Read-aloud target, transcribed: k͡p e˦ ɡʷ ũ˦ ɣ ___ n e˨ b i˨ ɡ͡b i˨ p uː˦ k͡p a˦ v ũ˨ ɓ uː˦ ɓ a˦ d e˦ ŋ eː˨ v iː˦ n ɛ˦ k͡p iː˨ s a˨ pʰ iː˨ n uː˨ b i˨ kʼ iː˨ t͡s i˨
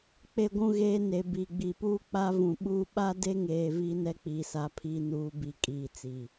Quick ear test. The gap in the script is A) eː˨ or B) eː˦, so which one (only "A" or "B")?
B